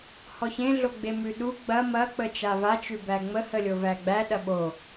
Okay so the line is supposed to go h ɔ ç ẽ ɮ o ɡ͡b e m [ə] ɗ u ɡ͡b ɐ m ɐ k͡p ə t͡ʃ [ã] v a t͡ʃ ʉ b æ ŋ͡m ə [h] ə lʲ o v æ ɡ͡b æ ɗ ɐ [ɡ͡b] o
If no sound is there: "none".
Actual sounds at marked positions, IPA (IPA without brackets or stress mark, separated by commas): ʉ, a, h, ɓ